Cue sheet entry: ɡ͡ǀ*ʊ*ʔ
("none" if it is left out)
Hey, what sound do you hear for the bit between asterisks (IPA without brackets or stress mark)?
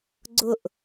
ʊ